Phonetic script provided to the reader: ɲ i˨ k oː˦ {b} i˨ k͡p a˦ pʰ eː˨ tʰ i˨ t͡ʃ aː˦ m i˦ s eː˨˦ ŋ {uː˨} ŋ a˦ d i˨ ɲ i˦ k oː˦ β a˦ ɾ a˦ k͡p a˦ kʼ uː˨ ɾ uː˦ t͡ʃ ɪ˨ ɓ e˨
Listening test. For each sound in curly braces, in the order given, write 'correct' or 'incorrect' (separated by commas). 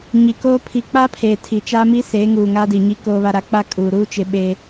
incorrect, correct